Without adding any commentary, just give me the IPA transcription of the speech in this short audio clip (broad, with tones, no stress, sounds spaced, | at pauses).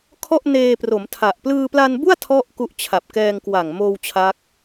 kʰ ɔ˥˩ ʔ n eː˧ p r o˩˦ m tʰ a˨˩ ʔ p l ɯː˧ p l a˧ n b u˥˩ a̯ tʰ ɔ˥˩ ʔ k u˦˥ ʔ t͡ɕʰ a˨˩ p̚ k ɛː˧ ŋ k w a˨˩ ŋ m oː˧ w t͡ɕʰ a˦˥ k̚